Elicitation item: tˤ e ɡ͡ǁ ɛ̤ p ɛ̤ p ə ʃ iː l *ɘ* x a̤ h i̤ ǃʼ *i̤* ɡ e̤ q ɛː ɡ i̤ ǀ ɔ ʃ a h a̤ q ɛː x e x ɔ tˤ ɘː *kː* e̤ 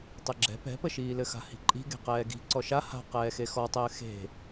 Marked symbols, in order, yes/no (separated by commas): yes, yes, no